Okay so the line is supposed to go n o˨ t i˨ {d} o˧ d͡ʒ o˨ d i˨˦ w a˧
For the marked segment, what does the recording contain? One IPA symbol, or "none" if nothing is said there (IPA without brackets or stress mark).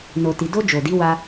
d